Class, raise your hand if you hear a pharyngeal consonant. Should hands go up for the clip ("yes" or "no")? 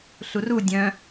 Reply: no